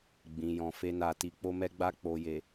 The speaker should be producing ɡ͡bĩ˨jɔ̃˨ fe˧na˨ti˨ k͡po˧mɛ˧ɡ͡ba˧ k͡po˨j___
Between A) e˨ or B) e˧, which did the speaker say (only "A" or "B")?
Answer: A